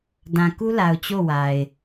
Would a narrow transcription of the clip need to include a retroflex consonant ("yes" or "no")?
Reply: no